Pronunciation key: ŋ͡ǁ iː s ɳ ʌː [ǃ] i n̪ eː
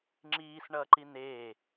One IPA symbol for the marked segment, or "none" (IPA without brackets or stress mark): ǃ